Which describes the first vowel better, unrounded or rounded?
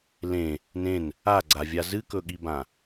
unrounded